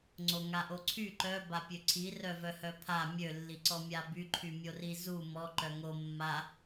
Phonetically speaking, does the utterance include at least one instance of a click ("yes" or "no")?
yes